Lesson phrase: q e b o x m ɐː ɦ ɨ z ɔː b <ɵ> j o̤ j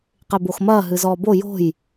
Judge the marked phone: incorrect: o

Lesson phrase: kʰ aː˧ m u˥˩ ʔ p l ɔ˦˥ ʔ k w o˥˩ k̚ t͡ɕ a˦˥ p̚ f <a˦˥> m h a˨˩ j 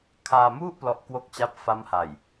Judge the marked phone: correct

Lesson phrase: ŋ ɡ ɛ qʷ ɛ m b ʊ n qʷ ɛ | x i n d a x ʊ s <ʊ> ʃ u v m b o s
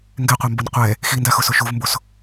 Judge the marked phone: correct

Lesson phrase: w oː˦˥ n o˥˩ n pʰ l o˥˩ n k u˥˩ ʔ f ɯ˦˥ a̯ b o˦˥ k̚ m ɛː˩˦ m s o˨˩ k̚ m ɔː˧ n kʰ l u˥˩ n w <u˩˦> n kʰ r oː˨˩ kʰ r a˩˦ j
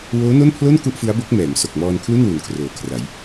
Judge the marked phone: correct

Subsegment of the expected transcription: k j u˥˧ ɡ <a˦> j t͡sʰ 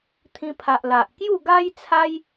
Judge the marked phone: correct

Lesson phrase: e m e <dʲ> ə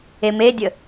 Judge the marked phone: correct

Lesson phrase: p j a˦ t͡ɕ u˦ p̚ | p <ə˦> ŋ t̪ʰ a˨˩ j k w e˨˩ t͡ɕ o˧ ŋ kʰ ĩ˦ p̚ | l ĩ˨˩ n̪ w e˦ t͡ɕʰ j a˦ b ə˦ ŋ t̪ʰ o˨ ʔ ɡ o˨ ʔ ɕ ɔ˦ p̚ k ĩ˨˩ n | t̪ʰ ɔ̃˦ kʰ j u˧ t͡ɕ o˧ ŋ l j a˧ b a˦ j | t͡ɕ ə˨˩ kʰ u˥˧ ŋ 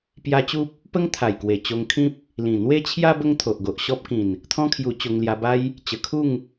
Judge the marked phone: correct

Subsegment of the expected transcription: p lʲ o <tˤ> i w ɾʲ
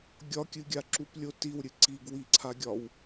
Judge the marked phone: incorrect: t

